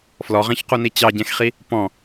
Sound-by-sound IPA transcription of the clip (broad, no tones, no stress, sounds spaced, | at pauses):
f l ɔ ʁ ɛ̃ ç q u n i t͡ɕ ɑ ɟ ɛ̃ x χ i | p ɔ̃